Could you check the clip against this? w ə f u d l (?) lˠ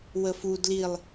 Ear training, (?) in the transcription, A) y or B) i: B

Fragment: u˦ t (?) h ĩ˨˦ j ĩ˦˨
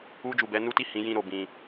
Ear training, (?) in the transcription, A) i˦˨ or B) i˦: A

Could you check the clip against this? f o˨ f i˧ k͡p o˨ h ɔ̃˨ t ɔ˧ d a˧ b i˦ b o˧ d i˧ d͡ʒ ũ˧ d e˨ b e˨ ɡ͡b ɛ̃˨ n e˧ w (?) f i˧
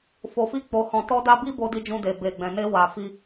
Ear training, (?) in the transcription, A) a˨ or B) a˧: A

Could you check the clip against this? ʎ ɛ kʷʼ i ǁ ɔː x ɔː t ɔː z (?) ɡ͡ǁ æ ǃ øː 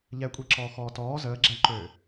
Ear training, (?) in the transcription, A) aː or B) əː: B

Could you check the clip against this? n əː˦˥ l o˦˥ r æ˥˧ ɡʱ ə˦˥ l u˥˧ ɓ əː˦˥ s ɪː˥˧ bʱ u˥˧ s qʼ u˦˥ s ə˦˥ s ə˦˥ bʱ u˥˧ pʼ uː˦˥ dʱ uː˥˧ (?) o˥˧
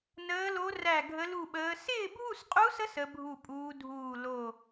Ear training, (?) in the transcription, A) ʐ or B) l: B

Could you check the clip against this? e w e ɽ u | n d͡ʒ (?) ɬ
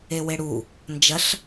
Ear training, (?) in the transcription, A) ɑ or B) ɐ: B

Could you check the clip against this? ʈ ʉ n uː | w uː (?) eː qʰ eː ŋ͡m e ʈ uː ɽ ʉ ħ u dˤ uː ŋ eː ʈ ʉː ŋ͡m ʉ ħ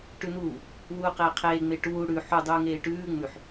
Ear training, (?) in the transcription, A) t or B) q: B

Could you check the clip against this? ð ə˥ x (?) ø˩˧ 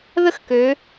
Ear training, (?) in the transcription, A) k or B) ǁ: A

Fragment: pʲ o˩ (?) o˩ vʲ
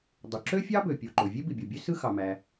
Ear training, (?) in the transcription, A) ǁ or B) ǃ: B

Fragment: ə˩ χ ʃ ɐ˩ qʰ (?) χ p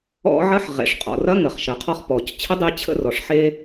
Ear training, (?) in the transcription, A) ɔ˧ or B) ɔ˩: A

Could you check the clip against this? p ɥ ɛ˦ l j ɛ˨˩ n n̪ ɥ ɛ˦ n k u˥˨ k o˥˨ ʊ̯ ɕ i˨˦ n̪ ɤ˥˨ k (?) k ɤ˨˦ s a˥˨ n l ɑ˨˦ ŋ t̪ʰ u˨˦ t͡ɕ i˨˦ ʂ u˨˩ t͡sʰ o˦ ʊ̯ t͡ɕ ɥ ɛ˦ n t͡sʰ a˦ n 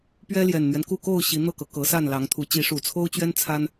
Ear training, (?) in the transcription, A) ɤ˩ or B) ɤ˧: A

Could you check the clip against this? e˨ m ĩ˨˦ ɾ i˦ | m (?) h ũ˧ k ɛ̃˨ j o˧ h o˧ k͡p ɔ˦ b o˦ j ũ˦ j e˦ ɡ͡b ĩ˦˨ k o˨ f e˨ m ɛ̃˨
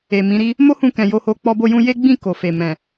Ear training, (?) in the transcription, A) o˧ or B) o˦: B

